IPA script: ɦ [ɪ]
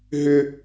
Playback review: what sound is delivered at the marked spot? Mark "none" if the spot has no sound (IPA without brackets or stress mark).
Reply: ʏ